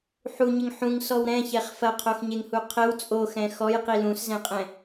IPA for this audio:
ħuɲɘŋ ħũŋsɔw ɾɛ̃çɛχ fɐqʰoxɲeŋhu qʰɘw t͡sʼoxɛ̃ xɔjqi lũszɛ̃qʼɛ̃

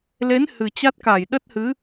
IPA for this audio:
le˨˦n hɨ˨˩t͡ɕa˦˥t̚ka˧˩j ɗə˦˥t̚hɨ˨˦

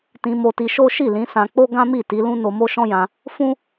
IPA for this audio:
tĩ˧mo˧ti˧ʃo˦ ʃi˦˨lĩ˨˦sã˧k͡po˦ ɡã˦mi˦˨ti˨˦lũ˦ no˧mo˦ʃɔ̃˦jã˧ | fũ˦

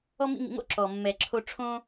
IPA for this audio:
ɔ˦ mḭ˦ŋḭ˧ŋo̰˦ ǁɔ˨ mːɛ˨ǁʰo˧ʈ͡ʂʰõ˦

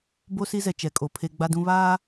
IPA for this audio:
bo˦si˦zɛ˨ t͡ʃɛ˨kʼo˨pʰe˦ ɡ͡ba˦dũ˦ βaː˦

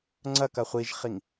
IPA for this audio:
ŋ͡ǀɐkɐ χʷiʒχiŋ

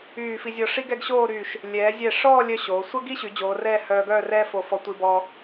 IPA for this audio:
yː˧˩fi˧zʲɔ˧ ʂi˥ɡɛ˥˧ɡɕoː˥˧ɾyː˧˩ʃ | lʲɛː˩˧zʲɛ˧˩ʂɔː˥˧lʲœ˧ ɕoː˩˧ sʷə˥ɡi˥ɕy˩˧ d͡ʑoː˩˧rɛː˥˧ hœː˧ɡœː˥˧rɛː˥fo˧˩ fɔ˧tʷi˧bɔː˧

